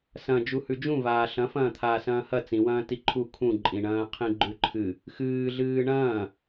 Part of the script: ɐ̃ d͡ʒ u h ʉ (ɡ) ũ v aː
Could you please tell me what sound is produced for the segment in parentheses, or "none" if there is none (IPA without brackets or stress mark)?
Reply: d͡ʒ